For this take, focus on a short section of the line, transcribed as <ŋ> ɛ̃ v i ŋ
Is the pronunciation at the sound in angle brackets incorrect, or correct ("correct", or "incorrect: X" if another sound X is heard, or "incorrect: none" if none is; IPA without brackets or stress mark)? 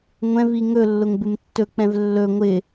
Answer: incorrect: ŋʷ